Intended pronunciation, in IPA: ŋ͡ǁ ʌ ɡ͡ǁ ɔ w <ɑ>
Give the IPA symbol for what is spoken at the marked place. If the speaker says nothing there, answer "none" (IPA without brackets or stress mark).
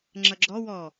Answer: ɔ